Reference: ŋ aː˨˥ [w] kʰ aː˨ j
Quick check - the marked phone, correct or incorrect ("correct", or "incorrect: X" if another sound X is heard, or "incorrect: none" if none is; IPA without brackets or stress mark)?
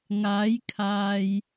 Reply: incorrect: j